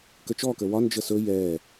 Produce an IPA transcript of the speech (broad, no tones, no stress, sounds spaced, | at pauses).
k ə t͡ʃ ɔ k ə w ɒ n d͡ʒ ə s ɵ j ɛ